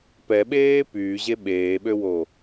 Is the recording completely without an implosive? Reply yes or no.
no